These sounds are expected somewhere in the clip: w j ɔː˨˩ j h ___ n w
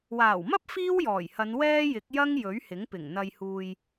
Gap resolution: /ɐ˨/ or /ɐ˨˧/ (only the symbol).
ɐ˨˧